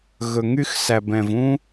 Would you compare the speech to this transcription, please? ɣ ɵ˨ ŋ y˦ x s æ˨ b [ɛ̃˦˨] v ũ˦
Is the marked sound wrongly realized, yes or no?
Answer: yes